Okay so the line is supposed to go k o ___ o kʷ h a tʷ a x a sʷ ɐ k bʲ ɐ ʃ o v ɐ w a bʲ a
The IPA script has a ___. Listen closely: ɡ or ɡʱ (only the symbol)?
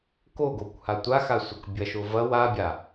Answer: ɡ